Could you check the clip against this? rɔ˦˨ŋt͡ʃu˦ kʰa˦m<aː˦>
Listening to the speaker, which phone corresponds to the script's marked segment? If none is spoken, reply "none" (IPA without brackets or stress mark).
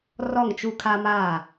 aː˦˨